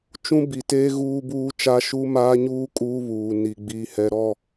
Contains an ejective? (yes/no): yes